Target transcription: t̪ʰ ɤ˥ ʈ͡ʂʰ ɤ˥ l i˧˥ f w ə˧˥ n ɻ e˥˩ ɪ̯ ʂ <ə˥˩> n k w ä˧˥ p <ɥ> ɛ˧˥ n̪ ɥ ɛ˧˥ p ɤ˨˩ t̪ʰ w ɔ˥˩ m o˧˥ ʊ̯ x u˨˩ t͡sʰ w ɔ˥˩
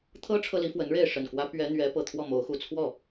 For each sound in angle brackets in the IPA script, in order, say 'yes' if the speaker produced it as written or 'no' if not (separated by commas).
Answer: no, yes